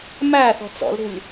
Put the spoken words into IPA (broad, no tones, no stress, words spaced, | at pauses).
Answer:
mæ θɔ̤t͡sɔ̰lɾṳlʲ